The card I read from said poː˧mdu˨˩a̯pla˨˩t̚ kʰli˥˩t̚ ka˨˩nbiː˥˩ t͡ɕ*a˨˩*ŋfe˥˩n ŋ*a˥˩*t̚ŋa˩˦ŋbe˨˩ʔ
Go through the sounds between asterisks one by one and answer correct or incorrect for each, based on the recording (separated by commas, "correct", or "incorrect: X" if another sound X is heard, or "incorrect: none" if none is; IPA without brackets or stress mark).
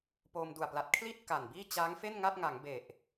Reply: incorrect: a˦˥, correct